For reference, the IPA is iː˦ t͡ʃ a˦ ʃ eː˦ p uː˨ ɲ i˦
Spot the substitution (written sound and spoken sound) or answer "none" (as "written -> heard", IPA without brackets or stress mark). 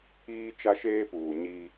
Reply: none